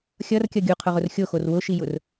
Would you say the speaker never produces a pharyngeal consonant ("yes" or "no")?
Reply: yes